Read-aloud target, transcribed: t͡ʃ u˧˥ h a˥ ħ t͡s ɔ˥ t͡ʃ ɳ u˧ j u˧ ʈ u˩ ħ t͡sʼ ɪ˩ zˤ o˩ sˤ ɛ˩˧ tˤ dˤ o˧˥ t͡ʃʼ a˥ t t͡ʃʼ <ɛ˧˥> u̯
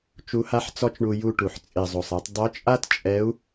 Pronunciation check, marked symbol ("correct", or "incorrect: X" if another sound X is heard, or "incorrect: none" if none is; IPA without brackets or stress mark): correct